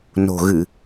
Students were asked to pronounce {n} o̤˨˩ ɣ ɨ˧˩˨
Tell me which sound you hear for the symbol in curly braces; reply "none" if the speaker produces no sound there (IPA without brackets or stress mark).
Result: n